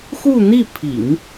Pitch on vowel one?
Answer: falling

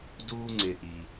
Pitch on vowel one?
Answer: high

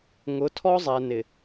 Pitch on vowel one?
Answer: rising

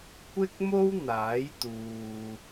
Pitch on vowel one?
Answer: high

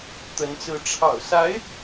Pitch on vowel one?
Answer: rising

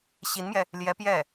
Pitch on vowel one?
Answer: rising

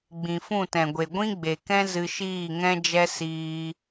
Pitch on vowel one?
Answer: low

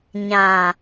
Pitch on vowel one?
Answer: low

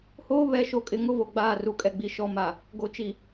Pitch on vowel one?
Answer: high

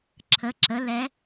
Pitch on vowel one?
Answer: rising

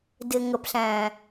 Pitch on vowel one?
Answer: low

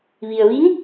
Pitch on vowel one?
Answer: low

